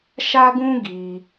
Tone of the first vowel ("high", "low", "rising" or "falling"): high